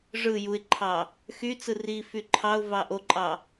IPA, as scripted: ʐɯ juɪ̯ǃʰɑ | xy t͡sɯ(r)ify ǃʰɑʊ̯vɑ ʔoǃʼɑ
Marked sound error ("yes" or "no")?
no